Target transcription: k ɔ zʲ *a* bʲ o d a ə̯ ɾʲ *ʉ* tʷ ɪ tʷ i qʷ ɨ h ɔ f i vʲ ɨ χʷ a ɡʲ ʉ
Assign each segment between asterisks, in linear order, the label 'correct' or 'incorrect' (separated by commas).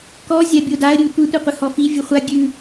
correct, correct